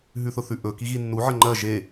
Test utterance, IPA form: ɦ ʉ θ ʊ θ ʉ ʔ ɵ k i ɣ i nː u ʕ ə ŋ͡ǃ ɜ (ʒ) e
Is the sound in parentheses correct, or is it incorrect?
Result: correct